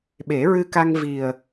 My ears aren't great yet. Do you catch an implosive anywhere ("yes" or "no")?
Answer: yes